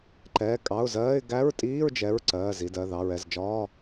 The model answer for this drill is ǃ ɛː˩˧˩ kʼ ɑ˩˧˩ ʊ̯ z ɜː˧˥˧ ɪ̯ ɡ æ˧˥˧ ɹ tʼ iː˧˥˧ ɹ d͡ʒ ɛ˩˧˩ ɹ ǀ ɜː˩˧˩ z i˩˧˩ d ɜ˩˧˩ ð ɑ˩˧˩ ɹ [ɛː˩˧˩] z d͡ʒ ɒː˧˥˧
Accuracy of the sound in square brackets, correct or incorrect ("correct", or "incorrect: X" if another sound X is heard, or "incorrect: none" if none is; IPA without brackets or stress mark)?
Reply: incorrect: ɛ˩˧˩